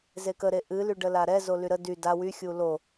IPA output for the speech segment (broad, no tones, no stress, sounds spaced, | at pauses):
z e k ə ɾ e ʔ ɨ l y ɖ ə l a ɾ ɛ z o l y ɾ ə d y d a w y xʲ u l o